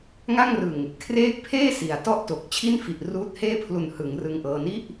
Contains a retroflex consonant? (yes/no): no